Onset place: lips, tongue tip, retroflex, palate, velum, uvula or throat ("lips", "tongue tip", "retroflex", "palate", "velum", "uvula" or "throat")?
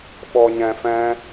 lips